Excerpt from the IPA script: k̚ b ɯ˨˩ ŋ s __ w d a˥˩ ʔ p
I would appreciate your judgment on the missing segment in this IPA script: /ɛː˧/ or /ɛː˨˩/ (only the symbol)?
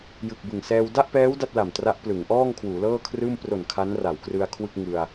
ɛː˧